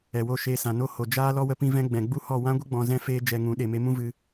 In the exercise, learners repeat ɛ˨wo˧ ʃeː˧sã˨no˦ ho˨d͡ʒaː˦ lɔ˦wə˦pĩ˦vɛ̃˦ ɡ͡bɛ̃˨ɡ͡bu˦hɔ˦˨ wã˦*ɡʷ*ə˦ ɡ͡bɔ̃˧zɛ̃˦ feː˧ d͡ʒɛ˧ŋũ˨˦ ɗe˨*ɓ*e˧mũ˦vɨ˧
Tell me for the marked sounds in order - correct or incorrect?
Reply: correct, incorrect

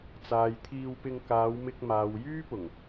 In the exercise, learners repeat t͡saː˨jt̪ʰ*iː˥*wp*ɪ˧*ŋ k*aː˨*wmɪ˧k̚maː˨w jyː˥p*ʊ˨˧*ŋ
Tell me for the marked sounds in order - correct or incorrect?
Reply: incorrect, correct, incorrect, incorrect

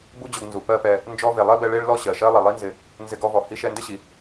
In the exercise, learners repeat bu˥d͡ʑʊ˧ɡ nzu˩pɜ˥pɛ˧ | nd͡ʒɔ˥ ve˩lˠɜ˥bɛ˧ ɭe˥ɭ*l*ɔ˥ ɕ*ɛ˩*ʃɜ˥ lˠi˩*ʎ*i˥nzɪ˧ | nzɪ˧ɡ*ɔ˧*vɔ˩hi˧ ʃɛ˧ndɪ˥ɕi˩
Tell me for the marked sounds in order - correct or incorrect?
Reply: correct, incorrect, incorrect, correct

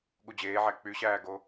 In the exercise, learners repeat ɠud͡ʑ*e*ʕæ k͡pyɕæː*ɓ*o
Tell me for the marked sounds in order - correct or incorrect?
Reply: incorrect, incorrect

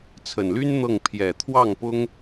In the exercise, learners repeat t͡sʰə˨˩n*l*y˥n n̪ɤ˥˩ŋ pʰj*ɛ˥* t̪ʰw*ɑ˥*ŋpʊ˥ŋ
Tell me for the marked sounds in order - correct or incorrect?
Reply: correct, incorrect, incorrect

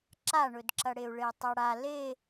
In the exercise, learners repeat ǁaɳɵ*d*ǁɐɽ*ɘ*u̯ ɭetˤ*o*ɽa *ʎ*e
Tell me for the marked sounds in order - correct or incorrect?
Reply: correct, incorrect, incorrect, incorrect

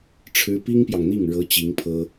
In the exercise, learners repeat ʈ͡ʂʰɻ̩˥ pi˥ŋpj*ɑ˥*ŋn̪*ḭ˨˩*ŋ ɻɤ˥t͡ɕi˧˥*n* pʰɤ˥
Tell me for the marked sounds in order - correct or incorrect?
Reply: incorrect, incorrect, incorrect

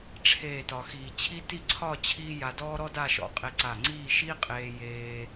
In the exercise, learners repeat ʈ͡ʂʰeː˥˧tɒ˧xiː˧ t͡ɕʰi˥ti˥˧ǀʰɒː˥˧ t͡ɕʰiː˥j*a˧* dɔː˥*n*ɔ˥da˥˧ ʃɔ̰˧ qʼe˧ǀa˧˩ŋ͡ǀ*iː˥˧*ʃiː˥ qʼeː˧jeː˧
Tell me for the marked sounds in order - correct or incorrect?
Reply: correct, incorrect, correct

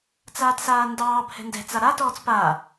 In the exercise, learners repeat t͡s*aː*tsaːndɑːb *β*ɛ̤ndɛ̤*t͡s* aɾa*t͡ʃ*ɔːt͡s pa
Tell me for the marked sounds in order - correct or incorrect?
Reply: correct, incorrect, correct, incorrect

